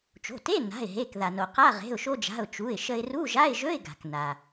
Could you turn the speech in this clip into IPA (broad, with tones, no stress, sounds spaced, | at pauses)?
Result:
t͡ʃ o̤˩˧˩ t e˧˥˧ n a̤˩˧˩ ɪ̯ ɦ e˩˧˩ k ð a˩ n o˩ q a˧˥˧ ʁ e̤˩˧˩ ʊ̯ ʃ o˧ d͡ʒ a̤˩˧˩ ʊ̯ t͡ʃ u˩˧˩ ɪ̯ ʃ ə˧ ɪ̯ r u˧˥˧ ʒ a˧˥˧ ɪ̯ ʒ ɵ˧˥˧ ɪ̯ ɡ a̤˩ k n a˩